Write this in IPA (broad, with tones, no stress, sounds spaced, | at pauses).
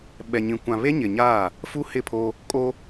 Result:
ɓ ɛ˨ ɲ ĩ˨ kʷ ã˨ β e˦ ɲ ɪ˨ ɲ aː˦˨ | f u˦ h ɪ˦˨ pʰ o˦ | kʼ o˦